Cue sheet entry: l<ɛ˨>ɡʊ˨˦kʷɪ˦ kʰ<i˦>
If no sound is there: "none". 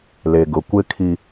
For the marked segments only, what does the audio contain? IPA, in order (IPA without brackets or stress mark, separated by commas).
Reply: e˨, i˦